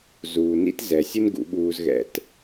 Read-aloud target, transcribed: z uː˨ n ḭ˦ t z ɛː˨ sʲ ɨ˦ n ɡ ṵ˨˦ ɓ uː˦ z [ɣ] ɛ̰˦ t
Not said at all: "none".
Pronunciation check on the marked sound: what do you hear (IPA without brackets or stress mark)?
ɣ